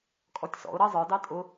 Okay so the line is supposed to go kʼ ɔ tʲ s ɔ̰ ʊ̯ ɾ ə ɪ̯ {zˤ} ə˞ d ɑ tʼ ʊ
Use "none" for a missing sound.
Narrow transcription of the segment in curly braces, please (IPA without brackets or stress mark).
zˤ